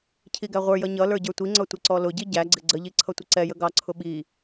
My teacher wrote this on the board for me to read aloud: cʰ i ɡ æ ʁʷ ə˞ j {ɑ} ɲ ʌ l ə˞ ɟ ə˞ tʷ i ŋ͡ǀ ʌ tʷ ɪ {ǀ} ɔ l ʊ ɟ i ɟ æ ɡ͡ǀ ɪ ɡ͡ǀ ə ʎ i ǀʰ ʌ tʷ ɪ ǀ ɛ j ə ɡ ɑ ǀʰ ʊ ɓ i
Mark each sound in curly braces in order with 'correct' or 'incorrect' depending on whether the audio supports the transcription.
incorrect: ʌ, correct

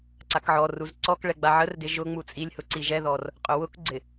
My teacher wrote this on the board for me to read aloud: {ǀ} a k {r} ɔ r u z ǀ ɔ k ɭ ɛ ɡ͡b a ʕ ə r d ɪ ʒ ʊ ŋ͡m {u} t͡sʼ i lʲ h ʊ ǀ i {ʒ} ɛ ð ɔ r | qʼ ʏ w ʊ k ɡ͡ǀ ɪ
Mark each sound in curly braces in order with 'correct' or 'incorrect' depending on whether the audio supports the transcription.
correct, incorrect: ʕ, correct, correct

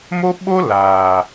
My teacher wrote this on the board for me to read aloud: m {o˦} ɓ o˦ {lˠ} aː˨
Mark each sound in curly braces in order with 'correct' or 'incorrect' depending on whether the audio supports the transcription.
correct, incorrect: l

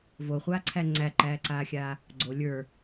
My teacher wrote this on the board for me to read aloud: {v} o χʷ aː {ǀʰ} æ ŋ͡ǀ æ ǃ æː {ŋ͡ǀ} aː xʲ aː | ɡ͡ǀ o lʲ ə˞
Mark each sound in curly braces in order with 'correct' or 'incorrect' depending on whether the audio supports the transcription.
correct, correct, incorrect: ǀ

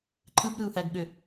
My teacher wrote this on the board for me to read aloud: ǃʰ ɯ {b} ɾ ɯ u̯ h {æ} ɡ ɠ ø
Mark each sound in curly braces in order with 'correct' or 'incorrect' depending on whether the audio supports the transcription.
correct, correct

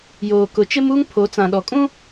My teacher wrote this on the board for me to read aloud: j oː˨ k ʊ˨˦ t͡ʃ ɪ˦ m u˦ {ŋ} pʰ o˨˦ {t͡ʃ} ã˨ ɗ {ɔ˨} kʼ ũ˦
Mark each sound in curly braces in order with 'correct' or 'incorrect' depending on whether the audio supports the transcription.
correct, incorrect: t͡s, correct

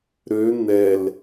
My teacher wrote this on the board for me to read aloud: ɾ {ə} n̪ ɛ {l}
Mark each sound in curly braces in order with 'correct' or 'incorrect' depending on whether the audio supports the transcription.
incorrect: ø, correct

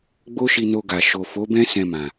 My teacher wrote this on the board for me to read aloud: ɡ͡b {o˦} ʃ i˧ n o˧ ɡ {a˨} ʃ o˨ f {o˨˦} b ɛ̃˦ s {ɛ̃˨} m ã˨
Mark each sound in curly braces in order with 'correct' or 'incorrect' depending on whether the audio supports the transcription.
correct, correct, correct, incorrect: ɛ̃˧

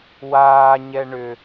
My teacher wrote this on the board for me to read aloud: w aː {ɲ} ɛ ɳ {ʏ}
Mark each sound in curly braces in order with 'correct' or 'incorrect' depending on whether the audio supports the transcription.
correct, correct

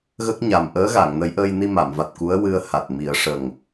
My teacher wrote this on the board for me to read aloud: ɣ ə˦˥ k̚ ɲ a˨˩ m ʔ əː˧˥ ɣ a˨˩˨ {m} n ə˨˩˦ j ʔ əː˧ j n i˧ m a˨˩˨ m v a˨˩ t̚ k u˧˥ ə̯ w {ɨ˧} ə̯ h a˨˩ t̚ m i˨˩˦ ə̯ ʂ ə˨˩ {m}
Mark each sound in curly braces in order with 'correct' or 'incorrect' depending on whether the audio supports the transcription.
incorrect: ŋ, correct, incorrect: ŋ

